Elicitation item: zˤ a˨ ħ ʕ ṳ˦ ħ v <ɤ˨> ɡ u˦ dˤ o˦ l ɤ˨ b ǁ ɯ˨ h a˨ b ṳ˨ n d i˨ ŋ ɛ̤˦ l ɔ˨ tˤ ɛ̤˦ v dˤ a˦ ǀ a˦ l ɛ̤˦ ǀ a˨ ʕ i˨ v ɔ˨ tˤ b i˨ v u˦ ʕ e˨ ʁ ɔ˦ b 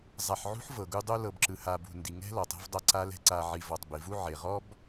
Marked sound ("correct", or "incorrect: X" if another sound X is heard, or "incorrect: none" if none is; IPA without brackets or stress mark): correct